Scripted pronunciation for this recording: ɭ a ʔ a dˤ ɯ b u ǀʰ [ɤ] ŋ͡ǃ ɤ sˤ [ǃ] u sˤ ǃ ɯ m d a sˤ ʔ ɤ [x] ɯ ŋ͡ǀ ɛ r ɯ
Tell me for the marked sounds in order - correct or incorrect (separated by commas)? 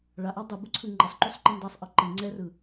incorrect, correct, incorrect